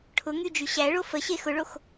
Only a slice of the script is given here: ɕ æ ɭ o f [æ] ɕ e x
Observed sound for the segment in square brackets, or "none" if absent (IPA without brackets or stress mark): ə